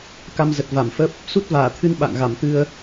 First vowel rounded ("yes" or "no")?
no